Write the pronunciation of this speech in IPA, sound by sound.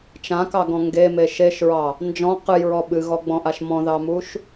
t͡ʃ ã k ɑ ɡ ɔ̃ ŋ ɡ e m e ʃ e ʃ ɹ ɑ | n d͡ʒ ɔ̃ q ɨ j ɹ ɔ ɓ ɨ ɣ ɔ ɡ͡b ɔ̃ ʔ a ʃ m ɔ̃ ð ɑ m u ʃ

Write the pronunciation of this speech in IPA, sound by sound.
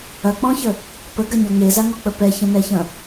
ɐ k͡p ɔ̃ ç ə | p ə ɡ ɐ ɲ ɔ ŋ e z a ŋ ɔ k͡p ə p ɛ ç ə̃ n ɛ ç ɐ̃

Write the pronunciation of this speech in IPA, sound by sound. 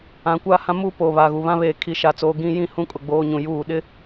ã˨ kʷ aː˦ h ã˦ m uː˦ p oː˨ β aː˨ ɣ u˨ β ã˦ β eː˨ kʰ i˨ ʃ a˨ t͡s oː˨ ɡ ĩ˦ j ĩ˦ h ũ˦ kʼ ʊ˨ ɡ͡b oː˦ ɲ ũ˨ j uː˦˨ ɗ ɪ˦

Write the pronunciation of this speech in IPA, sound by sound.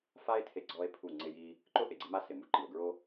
f a˦ e̯ tʰ e˧ ɡ͡ǀ ɔ˦ e̯ pʰ u˦˨ ŋ͡ǀ ɪ˦ j i˦ | ǃ ʊ˦ ʔ e˨ ɡ͡ǀ ɪ˦ m a˦ s ɪ˨ m u˧ ǃ i˨ o̯ ɡ ɹ o˦

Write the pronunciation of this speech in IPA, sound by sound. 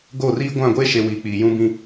ɡ oː˦˨ r iː˦ ɡʷ ã˦˨ ɡʷ eː˦ ʃ e˨ w iː˨ k͡p iː˨ j ũ˦ b ĩ˦

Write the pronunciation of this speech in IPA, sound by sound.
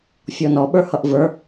fʲ ɔ n ɔ ɓ ə˞ h ʌ ʔ v ə˞

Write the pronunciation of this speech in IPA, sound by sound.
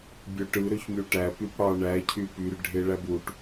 bʲ ø ʈ ɯ ɾ ø ç mʲ u ʈ æ p y p ɽ ɑ ɳ æ cʰ y p y r ɖʱ e ɭ æ b u ʈ

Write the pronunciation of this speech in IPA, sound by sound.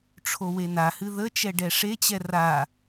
ʈ͡ʂʰ o w e n a h ɨ ð ə t͡ʃ ɛ ɖ ɛ ʂ e t͡ɕ ɛ r a

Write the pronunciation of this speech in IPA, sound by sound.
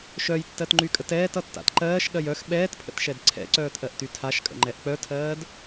ʃ œ j tː ɜ t ŋ͡ǃ y kʼ ə t ɛː t ʌ tː a̰ t ǃ ɜː ʃ ɠ ɜ j œ x ɓ ɛː t pʰ ə̰ t ʃ ɛ d ǀʰ ɛ̰ ǀ œː t ʔ ɜ ʔ t y tʰ a ʃ kʼ ə̰ ŋ͡ǃ ɛ ʔ k͡p œ tʰ ɜː d

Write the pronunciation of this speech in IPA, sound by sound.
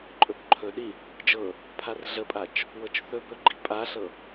ǃʼ ɵ b ǃʰ ɵ ɗ i | d͡ʒ ɤ | pʰ a r ɮ ə pʼ a t͡ʃ | w ɤ t͡ʃ θ ɵ b ɵ ɡ͡ǃ i pʼ a ɬ ɤ

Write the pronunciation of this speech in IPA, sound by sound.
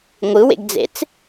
ŋʷ ɯ w ḛ ɡ d͡z ḛ t͡s

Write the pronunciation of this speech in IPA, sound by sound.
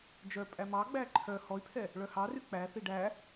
d͡ʒ œ pʼ æ m ɑ ɡ͡b æ ǃʰ œ h ɔ y̯ pʰ ɛ | ɭ œ h ɑ r y k͡p æ θ i ɖ æ

